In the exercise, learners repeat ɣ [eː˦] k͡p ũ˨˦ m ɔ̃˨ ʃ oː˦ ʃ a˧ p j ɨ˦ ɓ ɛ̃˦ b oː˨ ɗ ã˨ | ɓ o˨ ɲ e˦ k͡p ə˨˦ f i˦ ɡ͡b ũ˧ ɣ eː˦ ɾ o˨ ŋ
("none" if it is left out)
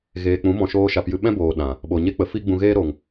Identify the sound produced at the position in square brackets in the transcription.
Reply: eː˨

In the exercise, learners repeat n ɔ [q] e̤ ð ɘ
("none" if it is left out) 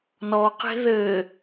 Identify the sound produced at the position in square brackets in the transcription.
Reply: q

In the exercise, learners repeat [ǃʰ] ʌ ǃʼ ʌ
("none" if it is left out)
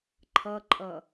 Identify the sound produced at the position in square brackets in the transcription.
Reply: ǃʰ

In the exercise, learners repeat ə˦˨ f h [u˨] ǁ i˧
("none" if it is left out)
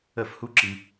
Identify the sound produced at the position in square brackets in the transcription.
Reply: u˦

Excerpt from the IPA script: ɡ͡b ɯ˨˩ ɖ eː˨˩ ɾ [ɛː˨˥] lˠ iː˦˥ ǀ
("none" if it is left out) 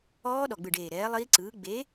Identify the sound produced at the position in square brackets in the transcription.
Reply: ɛː˨˥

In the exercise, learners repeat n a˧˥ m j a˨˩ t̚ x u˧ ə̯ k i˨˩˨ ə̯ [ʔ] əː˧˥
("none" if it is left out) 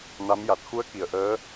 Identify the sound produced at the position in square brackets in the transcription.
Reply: ʔ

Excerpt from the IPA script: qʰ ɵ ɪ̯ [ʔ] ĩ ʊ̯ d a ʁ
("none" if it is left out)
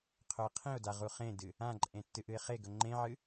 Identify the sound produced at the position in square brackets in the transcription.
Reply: qʰ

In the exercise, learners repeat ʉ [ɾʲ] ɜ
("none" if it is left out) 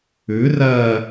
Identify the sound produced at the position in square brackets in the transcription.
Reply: r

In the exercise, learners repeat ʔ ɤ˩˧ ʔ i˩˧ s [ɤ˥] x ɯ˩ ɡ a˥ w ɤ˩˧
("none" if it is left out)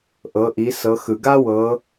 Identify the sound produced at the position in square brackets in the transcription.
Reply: ɤ˩˧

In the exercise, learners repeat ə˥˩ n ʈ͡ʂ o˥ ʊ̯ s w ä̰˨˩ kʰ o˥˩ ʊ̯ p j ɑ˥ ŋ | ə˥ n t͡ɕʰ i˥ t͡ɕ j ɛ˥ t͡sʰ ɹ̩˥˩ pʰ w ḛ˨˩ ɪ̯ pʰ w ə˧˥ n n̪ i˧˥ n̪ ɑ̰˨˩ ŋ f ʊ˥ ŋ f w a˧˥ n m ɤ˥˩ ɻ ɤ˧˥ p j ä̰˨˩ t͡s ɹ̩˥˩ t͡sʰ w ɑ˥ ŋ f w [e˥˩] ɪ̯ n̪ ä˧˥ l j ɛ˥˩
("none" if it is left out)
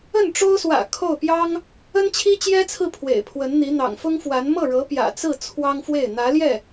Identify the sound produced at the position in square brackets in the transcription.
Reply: e˥˩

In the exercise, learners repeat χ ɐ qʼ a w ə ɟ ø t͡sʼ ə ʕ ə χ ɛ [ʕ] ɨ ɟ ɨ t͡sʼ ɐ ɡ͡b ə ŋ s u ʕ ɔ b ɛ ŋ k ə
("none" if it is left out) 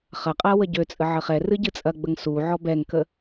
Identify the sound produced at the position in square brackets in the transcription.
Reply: r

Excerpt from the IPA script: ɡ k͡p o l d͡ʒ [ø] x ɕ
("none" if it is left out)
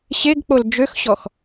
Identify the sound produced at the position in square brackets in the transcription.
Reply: ø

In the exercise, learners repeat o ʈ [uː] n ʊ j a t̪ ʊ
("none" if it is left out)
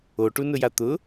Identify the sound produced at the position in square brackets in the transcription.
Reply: u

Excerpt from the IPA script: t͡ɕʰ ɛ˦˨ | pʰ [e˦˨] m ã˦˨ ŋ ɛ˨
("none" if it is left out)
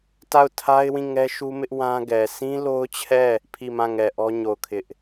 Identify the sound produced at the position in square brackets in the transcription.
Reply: i˦˨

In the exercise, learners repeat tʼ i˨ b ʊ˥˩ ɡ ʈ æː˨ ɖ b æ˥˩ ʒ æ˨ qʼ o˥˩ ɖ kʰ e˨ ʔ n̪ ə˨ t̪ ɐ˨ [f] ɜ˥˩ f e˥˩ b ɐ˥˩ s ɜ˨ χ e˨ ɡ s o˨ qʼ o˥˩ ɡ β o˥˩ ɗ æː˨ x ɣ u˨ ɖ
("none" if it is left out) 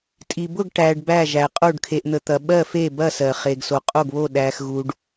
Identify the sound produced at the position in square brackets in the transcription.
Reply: ɓ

